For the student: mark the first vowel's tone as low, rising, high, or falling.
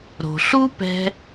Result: low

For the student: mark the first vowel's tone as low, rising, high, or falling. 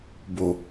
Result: low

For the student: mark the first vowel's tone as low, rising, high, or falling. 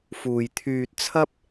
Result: low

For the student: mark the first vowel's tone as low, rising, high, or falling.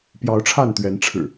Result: rising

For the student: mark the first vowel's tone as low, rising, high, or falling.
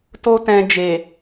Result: high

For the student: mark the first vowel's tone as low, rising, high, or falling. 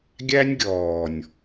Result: high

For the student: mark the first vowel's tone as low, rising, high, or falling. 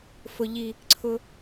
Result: low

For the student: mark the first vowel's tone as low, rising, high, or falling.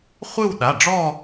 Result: falling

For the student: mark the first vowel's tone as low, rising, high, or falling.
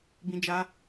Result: high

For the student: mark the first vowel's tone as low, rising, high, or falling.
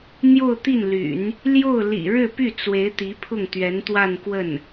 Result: falling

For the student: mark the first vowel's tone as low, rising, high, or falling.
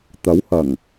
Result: rising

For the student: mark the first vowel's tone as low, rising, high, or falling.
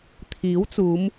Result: rising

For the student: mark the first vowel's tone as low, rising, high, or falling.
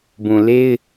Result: low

